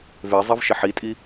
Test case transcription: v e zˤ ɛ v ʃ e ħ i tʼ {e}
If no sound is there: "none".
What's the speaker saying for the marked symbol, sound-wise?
i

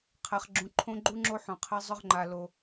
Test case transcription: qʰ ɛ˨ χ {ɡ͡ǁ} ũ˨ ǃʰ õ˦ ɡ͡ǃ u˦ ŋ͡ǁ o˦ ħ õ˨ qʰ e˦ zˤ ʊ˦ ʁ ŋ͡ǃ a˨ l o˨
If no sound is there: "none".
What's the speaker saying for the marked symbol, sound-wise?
ɡ͡ǁ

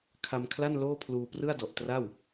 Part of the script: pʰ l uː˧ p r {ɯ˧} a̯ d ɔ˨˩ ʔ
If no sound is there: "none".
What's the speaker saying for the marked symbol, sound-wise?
ɯ˥˩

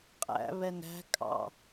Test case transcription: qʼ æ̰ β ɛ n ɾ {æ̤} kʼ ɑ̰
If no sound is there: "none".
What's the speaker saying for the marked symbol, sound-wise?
æ̤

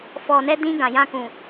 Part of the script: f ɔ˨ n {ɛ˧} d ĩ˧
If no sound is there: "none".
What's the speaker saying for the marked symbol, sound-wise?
ɛ˧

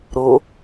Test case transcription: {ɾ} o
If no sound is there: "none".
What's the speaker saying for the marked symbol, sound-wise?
ɾ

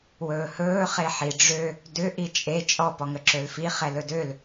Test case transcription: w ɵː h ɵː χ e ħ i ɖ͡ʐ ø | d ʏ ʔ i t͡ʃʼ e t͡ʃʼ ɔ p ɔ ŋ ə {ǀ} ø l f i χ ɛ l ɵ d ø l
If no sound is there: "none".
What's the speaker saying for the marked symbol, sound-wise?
ǁ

